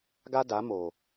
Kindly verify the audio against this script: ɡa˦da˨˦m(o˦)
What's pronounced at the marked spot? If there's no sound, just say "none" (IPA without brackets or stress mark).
o˨